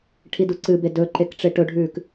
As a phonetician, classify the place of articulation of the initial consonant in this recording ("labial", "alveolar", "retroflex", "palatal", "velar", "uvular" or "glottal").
retroflex